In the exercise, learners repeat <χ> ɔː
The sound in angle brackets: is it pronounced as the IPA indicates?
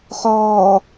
yes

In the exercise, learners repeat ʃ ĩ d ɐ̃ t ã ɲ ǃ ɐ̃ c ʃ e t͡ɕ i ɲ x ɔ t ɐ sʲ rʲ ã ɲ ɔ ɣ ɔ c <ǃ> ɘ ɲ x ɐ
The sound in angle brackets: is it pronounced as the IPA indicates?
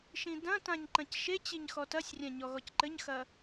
yes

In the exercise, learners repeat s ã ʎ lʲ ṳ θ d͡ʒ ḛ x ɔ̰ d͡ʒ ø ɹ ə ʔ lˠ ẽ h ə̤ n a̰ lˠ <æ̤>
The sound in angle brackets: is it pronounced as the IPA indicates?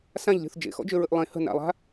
no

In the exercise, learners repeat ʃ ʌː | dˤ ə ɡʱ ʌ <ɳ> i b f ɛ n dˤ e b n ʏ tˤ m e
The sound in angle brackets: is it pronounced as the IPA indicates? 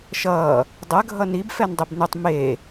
no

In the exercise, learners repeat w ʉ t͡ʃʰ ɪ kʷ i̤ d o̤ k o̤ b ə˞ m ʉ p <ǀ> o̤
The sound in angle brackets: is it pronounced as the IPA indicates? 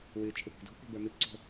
yes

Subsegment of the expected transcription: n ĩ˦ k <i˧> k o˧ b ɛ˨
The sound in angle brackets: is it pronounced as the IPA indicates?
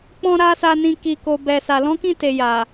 yes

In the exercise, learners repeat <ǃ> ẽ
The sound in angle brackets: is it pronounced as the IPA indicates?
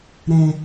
no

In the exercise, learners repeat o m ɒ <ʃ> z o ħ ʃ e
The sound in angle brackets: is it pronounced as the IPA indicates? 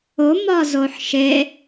no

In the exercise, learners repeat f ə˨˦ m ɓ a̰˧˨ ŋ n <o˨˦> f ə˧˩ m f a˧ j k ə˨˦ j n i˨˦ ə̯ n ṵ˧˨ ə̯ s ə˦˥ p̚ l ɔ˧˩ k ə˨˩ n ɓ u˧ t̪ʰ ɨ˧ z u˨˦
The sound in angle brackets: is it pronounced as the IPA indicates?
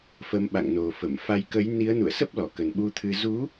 no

